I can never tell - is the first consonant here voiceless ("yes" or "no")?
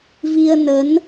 no